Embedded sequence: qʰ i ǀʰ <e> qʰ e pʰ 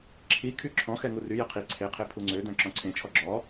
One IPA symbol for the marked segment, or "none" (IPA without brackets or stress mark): e